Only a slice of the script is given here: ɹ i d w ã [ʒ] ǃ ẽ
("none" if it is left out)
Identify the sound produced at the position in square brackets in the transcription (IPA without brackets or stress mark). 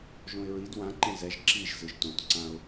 none